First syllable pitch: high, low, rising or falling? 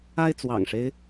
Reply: high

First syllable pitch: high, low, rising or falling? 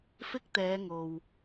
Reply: high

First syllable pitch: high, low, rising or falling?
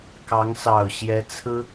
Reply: rising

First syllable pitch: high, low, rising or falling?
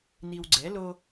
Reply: low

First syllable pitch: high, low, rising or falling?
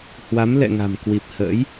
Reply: rising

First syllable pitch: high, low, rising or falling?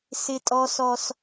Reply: high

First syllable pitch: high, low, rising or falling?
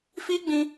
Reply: high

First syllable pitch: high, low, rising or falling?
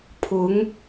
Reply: rising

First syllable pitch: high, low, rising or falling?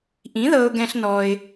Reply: rising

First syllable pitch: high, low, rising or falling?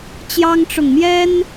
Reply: high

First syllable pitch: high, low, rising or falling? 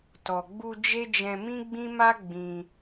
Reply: low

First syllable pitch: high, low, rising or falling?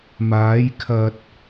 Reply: rising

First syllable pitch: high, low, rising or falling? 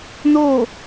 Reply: falling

